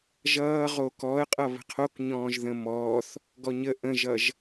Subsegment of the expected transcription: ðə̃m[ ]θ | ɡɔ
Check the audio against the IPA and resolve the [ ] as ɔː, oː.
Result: ɔː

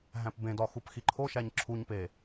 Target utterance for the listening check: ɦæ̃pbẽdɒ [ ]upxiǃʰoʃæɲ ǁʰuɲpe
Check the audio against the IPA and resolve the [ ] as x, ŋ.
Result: x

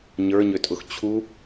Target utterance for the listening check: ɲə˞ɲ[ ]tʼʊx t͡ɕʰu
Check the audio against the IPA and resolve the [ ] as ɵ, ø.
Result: ø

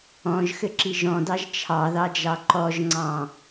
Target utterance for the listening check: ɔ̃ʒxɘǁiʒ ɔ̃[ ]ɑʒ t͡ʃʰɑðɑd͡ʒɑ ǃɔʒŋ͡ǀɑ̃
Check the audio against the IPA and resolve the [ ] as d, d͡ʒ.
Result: d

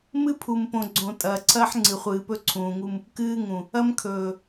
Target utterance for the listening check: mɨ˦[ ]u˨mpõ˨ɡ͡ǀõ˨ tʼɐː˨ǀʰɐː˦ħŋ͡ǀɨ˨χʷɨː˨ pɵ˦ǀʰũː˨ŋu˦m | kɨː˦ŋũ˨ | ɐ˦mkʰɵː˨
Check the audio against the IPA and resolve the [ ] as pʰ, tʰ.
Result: pʰ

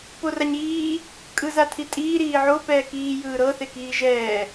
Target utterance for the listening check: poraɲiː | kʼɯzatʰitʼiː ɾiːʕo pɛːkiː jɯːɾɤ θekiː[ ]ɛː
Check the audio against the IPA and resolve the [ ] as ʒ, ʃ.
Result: ʒ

